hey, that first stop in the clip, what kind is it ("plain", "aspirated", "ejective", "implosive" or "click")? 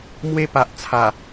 plain